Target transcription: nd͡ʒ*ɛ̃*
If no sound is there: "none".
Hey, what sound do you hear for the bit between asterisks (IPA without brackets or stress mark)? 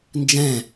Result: ɛ̃